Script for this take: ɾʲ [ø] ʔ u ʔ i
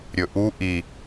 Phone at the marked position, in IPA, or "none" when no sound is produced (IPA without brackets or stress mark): ɵ